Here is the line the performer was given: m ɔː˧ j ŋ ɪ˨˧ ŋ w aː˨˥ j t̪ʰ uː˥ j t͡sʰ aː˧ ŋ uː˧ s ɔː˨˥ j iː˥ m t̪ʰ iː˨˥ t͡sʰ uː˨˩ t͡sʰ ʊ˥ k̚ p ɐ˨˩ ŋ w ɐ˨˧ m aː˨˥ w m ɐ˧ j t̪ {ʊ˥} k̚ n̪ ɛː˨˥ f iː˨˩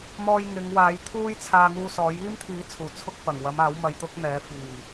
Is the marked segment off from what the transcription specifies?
no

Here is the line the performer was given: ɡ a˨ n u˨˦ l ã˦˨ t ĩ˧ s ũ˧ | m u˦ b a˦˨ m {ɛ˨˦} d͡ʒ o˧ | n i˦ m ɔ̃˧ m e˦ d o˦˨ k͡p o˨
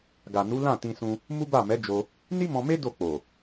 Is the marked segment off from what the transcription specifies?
no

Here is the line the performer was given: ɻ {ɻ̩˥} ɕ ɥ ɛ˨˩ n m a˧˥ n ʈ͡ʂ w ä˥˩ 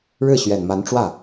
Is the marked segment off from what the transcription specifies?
yes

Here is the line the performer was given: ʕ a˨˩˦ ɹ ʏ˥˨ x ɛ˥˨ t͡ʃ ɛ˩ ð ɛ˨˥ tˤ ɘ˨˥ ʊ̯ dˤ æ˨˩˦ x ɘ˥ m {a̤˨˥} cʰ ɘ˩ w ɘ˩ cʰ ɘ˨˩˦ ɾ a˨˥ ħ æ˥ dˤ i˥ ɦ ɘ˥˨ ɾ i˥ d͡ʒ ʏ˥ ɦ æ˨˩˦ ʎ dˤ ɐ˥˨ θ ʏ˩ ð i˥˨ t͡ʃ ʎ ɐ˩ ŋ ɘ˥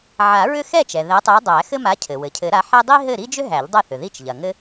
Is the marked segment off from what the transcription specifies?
yes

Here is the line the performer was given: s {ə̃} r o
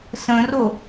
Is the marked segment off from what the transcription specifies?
no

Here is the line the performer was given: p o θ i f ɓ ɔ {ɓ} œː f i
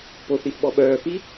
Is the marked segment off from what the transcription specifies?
no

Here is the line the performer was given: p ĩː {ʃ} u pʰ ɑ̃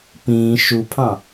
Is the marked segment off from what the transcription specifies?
no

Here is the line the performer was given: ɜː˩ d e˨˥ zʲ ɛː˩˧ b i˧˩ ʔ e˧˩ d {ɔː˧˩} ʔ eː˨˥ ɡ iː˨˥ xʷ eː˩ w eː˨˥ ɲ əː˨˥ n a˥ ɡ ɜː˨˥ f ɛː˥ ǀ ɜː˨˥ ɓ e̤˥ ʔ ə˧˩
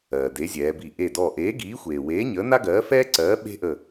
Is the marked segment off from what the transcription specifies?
no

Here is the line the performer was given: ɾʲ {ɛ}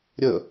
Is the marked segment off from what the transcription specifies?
yes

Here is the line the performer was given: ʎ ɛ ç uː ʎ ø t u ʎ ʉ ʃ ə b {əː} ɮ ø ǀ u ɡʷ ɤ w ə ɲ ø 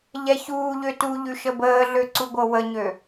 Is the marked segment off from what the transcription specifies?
no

